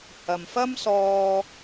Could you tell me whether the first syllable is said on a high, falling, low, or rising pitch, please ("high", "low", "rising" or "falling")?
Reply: low